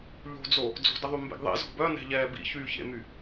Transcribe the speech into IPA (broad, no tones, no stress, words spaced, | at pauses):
ʎo̤d͡zo | d͡zo̤dəðˤy mbḛɡðˤḛ zɔ̤bœ nɛ̤ʎɛːbḭ çyːçḛmy